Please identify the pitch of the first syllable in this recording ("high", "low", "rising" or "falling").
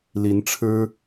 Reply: rising